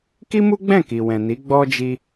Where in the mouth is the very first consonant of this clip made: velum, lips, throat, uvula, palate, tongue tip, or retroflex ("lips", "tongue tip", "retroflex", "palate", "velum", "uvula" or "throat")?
velum